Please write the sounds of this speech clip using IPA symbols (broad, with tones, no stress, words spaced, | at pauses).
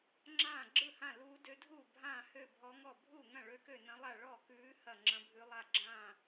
ŋ͡ǁãː˥˩ɡ͡ǁɯ˥˩hã˥˩ luː˧˥dø˧˥dʱuː˥˩ bʱãː˥˩hø˥˩ bʱɔ˧˥ŋɔ˥˩ bʱuː˥˩ŋɐ̃˥˩ ɭø˧˥kø˥˩ nɐ̃˧˥lˠa˥˩ ɭɔ˥˩kʉː˧˥ hɐ˥˩ŋ͡ǁɐ̃˧˥bʱʉ˧˥lˠa˥˩ ɡ͡ǁãː˥˩